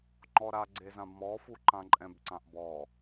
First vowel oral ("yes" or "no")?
yes